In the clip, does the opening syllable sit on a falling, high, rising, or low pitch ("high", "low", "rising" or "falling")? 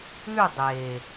falling